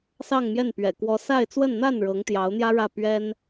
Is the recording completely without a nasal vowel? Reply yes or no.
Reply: yes